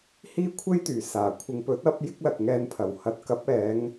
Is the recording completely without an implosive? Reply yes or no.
yes